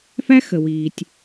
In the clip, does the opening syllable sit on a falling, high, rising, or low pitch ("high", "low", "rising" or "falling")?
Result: high